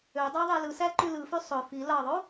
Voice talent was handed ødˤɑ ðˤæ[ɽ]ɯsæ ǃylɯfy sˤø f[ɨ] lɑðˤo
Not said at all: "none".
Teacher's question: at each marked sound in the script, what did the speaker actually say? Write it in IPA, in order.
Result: l, i

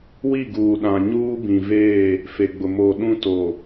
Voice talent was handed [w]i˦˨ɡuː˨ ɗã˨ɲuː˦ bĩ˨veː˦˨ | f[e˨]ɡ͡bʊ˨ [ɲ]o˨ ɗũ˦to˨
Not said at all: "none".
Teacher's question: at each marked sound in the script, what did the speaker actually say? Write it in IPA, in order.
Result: w, e˨, m

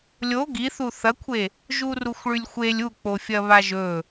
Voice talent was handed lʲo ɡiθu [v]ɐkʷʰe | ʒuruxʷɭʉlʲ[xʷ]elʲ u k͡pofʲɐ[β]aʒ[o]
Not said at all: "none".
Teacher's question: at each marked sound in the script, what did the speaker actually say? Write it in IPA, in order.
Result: θ, xʷ, β, ɵ

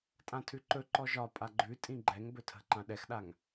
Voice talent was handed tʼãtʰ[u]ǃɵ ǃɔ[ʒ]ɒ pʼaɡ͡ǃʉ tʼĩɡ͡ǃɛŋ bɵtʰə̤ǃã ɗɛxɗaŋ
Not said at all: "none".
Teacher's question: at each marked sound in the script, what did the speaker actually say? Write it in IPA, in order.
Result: ʉ, ʒ

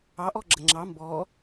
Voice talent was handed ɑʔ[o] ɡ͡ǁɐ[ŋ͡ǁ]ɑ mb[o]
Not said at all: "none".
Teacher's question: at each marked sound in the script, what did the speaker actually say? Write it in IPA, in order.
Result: ɔ, ŋ͡ǁ, ɔ

